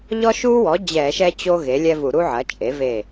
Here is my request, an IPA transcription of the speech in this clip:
ʎ ɔ˦ ʃ u˦ w ɔ˩˥ d͡ʑ ɛ˧˩˧ ʃ ɛ˦ t͡ɕ o˦ ɣ e˩˥ lʲ ɛ˦ v u˧˩˧ ɾ u˦ ʕ ɐ˩˥ t͡ʃʼ e˩˥ v e˧˩

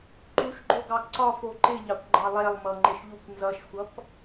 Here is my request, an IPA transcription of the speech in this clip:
ǃ u ʃ ɡ͡ǃ o ɡ ɑ ɡ ǀ ɒ f o ǃ ɪ ʎ ɑ kʷ ɡ͡ǃ ɑ lˠ ɛ lˠ m ʌ ŋ͡ǃ ɪ ʃ ʎ u kʷ n z ʌ ʃ xʷ ʌ p

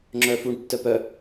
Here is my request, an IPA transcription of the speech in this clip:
ŋ͡ǁ œ f u ɳ tː œ p œ

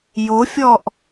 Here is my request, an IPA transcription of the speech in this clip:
j o fʲ ɔ ʔ

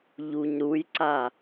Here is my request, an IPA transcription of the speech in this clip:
ʎ u ɲ ɾ u j ǀ a

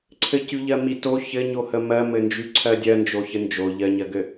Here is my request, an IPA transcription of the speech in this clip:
ǀʰ ɘ c y ʎ ɜ m i t o ç ɘ ɲ o h ə m ɜ m ɘ n d͡ʒ y ǀʰ ɜ dʲ ɜ n d͡ʒ o ç ɘ n d͡ʒ o ʎ ɜ ɲ ɜ ɡ ɘ

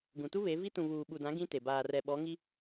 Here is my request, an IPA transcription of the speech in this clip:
ɡ ũ˨ t u˦ β e˨˦ v i˦ t ũ˨ β uː˨ ɓ u˨ d ã˨˦ ɡ ĩ˦ t e˨ b aː˨ r ɛ˨ ɓ ɔ˨˦ ŋ i˦

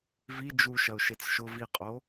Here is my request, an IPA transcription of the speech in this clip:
v i d͡ʒ u ʃ ɐ ʊ̯ ʃ e t͡s ʃ ʊ v i qʼ o

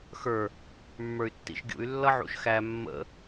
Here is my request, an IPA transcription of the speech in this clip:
x ə˞ | mː ə˞ y̯ tː ḭ ʃ ɡʲ ṵ y̯ lː ʌ ʕ ṵ ʃ x æ mː ə̰

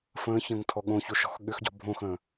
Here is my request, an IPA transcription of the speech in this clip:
f ə̃ː ç ə̃ː ŋ tʰ ɔ ɠ õ ç o ʃ ɔ̤ x ɠ ʏ x ɟ ɔ̤ bʱ õ x ə̃ː

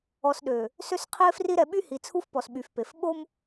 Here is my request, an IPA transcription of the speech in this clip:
ɔ˨ s ɗ ø˨ | s ø˦ s qʰ i˦ e̯ f r i˦ ɾ ɛ˨ ɓ y˦ h i˨ t͡sʰ u˦ f p ɔ˨ s ɓ y˨ f p e˨ f ɓ o˦ m

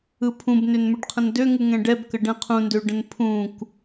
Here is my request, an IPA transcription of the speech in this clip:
ɯ pʰ ũ b n ʏ n m ʏ ɖ qʰ ə̃ n d ø ŋ u ŋ ɛ̃ ɖ ɛ b k ə ɖ ɛ̃ qʰ ũ n d ø ɖ ə̃ n pʰ ũ k

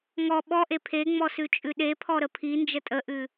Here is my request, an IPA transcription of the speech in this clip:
ŋ ɔ ɓ ɔ ʔ e pʰ e ŋ͡m ɔ s ʉ t͡ʃʼ ʉ ɗ e pʰ ɔ ɾ ə pʰ i n d͡ʒ ə tʼ ə ʔ ʉ

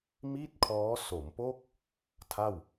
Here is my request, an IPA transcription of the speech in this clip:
m i˥˩ t̚ kʰ ɔː˦˥ s o˩˦ m p o˥˩ k̚ | tʰ a˥˩ w

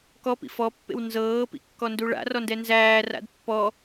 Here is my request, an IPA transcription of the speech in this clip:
k ɔ p ḭ f ɔ pː ḛ w n z ɤː p ḭ kː ɔ n d u ɭ a̰ r ɔ n d ɛ n z æː r a̰ d pː ɔ

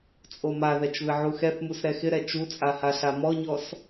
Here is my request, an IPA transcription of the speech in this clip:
t͡sʼ o m a ð ɛ t͡ʃ β ɪ ʕ u x ɛ θ m u s ɾ ɛ x ɪ ɾ ɛ t͡ʃ u t͡sʼ a h a ɬ a m ɔ ɲ ɔ s

